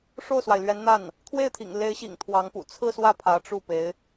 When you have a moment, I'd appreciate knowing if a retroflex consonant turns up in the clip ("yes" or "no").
yes